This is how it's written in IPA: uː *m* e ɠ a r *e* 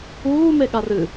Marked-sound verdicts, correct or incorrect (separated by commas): correct, incorrect